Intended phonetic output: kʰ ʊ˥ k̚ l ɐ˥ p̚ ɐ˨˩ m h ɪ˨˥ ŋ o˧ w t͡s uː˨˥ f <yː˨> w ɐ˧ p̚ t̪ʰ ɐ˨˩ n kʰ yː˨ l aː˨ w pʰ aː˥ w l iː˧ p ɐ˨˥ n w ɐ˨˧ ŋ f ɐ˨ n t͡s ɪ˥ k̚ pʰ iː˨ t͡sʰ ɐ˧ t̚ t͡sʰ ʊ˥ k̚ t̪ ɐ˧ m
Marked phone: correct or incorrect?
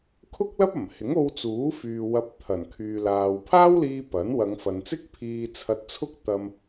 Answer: correct